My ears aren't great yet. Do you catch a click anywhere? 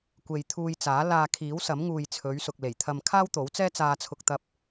no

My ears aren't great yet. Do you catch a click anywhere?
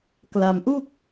no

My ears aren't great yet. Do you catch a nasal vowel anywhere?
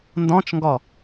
yes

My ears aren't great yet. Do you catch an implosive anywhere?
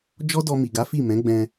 no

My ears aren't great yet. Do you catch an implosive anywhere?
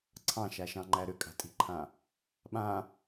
yes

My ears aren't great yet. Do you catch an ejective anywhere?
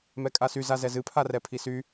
yes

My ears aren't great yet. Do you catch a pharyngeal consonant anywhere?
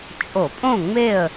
no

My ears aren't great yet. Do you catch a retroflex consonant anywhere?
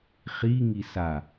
no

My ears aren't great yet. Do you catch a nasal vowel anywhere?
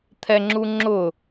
no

